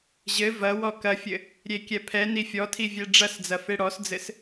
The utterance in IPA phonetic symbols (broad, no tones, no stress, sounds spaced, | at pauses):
ʑ ɘ v ɐ w ɔ k ɐ fʲ ɘ | ɾʲ e kʲ ɛ pʰ ɛ n i fʲ ɔ tʰ i vʲ ɛ ɖ͡ʐ ɐ s d͡z ɐ f e ɽ ɔ s d͡z ɘ s